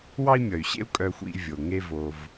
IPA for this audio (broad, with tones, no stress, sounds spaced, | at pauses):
w ɑ˦ i̯ mʲ ʌ˩ y̯ ɕ ḛ˦ u̯ kʼ œ˨ xʷ ḭ˨ vʲ o˩ ŋ e˦ v o˨ v